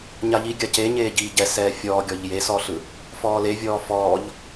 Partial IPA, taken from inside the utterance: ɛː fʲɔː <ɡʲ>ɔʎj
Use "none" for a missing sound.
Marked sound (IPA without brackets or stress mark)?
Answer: ɡʲ